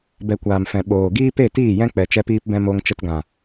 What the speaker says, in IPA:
b ɛ˧ kʷ aː˨ m f ɛ̃˨ ɓ oː˨ ɡ iː˦ p e˦˨ t iː˦˨ j ɛ̃˦ k͡p ɛ˧ t͡ʃ ɛ˦ p iː˦ p b ɛ̃˦ m o˧ ŋ t͡ʃ ə˧ t ɡ ã˨

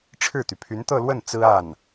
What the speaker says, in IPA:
ʈ͡ʂʰ ɻ̩˥˩ t̪ y˩ pʰ y˧˥ n t̪ ɤ˥˧ l w ə˥˩ n t͡s ɹ̩˥ a˥˩ n

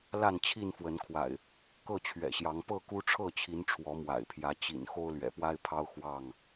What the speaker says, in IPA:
l a˥˨ n t͡ɕʰ i˥˨ n f w ə˨˦ n kʰ w a̰˨˩ ɪ̯ | k ɤ˥˨ t͡ɕʰ ɥ ɛ̰˨˩ ɕ j ɑ˨˦ ŋ p ɤ˥˨ k u˦ ʈ͡ʂʰ ɤ˥˨ t͡ɕʰ i˨˦ n ʈ͡ʂʰ w ɔ˨˦ m w a̰˨˩ ɪ̯ pʰ j ä˨˦ t͡ɕ ḭ˨˩ n x o˦ ʊ̯ l ɥ ɛ̰˨˩ p w a˦ ɪ̯ pʰ ɑ˦ ʊ̯ x w ɑ˥˨ ŋ

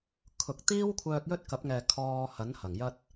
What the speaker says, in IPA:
kʰ ʊ˨ k̚ t̪ iː˥ w kʷʰ œː˧ k̚ j ɵ˥ t̚ k ɐ˨˥ p̚ ŋ ɛː˨ kʰ ɔː˧ h ɐ˨˥ n h ɐ˨˩ ŋ j ɐ˥ t̚

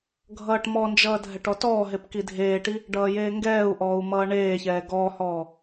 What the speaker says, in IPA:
ɡʱ ʌː ʈ m ɔ n d͡ʒ ʌː dʱ ɛ ʈ ɔ t ɔː ɦ e p k i dʱ eː ʈ i | ɖ ʌː j eː ŋ ɡ ɛː u̯ ʔ ɔː u̯ m ʌː ɳ eː ç ɛː ɡ ɔː h ɔː

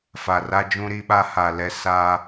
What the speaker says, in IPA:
f a˨ r a˦ d͡ʒ ũ˦ ɾ i˦ ɓ a˦ h a˨ l ɛ˦ s a˦

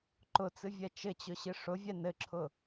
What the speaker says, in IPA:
ǃ ʊ t͡s ɨ vʲ ɛ t͡ʃ ɘ t͡ɕ ʊ ɕ ɨ ʂ ʊ vʲ ɛ n ɘ ǁʰ ʊ

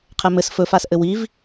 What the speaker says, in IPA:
qʰ ɛ m ɘ s f ɵ f a s ʔ ɘ w i v

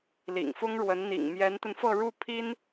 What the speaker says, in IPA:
l ḭ˨˩ ŋ f ʊ˥ ŋ ɻ w ə˧˥ n n̪ ḭ˨˩ ŋ m j ɛ˧˥ n t̪ ə˧ n f ɤ˥˧ ɻ u˥˩ pʰ i˥ n

